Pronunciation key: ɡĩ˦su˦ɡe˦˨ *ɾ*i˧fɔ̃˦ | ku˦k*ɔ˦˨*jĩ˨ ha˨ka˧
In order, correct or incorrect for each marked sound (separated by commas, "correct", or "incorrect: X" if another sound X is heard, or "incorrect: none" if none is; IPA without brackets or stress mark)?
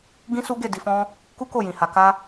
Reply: incorrect: d, incorrect: o˦˨